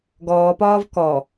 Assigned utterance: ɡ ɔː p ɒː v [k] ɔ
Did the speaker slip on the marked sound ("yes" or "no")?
no